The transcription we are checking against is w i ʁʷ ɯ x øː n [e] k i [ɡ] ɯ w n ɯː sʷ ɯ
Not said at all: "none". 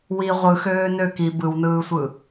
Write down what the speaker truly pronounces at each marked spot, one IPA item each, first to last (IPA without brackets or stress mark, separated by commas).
ø, b